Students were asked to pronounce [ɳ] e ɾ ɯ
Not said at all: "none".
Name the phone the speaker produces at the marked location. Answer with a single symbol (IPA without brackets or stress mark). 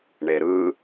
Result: ɳ